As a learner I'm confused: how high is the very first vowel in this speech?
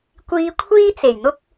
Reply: high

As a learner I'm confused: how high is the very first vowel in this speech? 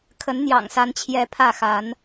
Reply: mid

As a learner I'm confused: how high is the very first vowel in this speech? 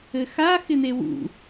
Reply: mid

